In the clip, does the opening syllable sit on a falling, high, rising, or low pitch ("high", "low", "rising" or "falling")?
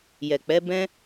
low